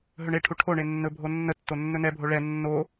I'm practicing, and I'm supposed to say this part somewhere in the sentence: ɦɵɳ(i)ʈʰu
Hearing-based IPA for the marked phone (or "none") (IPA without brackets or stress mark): e